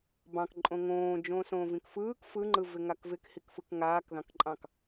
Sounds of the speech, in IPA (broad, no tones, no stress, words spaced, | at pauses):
bɑ̃k ǃʼõŋõː d͡ʒõsõːvĩkfɯːk fɯŋ͡ǃɯvɪ ŋakvɪkhikfɯk ŋaːkðɑ̃kǃʼɑ̃k